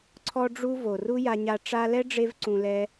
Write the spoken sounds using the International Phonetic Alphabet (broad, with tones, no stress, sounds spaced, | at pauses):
ǀʰ ɔ˧ ɖ͡ʐ u˧ v o˨ r u˦ j a˧ ɲ a˧ ʈ͡ʂ a˧ l ɛ˦ ɖ͡ʐ e˧ v ǀ ũ˧ l ɛ˦